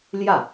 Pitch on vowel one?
falling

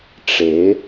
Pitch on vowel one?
rising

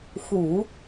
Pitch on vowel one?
low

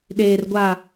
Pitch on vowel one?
low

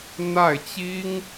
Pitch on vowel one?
falling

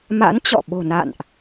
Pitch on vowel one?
rising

